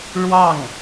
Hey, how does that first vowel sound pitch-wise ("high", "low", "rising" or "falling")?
falling